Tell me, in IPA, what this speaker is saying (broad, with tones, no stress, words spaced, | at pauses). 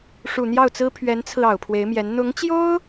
ʂu˨˩n̪jɑ˥˩ʊ̯t͡sɹ̩˥ pʰɥɛ˧˥nt͡sʰɹ̩˧ ɑ˨˩ʊ̯pʰwe˧˥ɪ̯mjɛ˧˥n n̪ʊ˧˥ŋt͡ɕjo˥ʊ̯